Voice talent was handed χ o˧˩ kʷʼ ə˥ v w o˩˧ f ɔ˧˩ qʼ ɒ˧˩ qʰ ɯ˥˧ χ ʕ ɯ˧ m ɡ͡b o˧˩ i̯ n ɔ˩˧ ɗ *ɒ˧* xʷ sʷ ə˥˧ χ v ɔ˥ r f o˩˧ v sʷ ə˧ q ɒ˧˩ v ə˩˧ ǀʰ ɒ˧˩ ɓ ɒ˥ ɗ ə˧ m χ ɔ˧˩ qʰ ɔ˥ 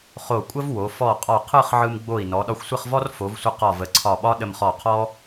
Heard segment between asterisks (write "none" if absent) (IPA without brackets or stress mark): ɒ˧